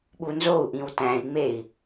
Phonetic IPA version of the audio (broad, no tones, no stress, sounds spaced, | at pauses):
ɓ u n z o u̯ ʔ ĩ w t æ̃ i̯ ŋ͡m e i̯